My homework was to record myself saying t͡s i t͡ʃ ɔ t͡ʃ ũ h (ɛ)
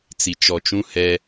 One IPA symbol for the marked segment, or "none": ɛ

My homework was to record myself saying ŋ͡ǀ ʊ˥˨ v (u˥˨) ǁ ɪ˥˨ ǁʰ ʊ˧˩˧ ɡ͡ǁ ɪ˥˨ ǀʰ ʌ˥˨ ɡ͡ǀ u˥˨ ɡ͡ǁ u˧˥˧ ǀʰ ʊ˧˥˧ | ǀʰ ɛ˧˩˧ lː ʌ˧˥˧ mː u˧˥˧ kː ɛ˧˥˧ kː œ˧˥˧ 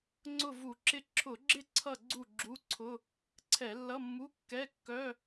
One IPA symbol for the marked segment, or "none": u˧˩˧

